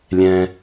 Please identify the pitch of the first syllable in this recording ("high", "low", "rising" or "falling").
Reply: low